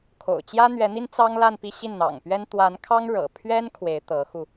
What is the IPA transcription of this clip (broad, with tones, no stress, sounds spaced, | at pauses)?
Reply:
kʰ o̰˨˩ ʊ̯ t͡ɕ j ä˥ n̪ ɥ ɛ˧˥ n̪ i˥ n t͡s ɑ˥ ŋ l a˥˧ n p i˥˧ ɕ i˥˩ n n̪ ɑ̰˨˩ ŋ p ɥ ɛ˥ n t̪ w a˧˥ n kʰ ɑ˥ ŋ ɻ ɤ̰˨˩ pʰ ɥ ɛ˥ n kʰ w e˧˥ ɪ̯ t̪ ɤ˧˥ x u˧